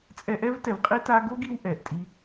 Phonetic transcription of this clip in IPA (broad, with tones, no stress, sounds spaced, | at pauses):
t͡sʼ ɛ˧ ʔ ɛ˦ v t ɛ˨ v qʼ i˦ t a˧ ɡ o˦ ɡ i˧ w ʔ ɛ˨ ʔ tʼ i˦